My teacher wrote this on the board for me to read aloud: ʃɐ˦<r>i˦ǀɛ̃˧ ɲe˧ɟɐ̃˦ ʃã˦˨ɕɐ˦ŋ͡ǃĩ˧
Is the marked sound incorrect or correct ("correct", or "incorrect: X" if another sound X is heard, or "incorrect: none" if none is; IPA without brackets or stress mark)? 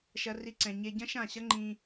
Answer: correct